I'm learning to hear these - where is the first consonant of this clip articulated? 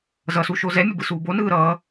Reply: tongue tip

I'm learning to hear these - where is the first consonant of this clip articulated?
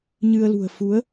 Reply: palate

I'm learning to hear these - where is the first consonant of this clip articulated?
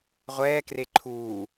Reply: uvula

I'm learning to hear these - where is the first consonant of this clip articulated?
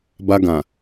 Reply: lips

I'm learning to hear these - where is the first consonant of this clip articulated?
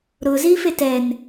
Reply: tongue tip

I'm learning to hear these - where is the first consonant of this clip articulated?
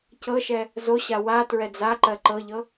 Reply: palate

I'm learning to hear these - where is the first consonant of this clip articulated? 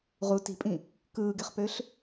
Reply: uvula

